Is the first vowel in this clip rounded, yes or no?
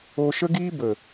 yes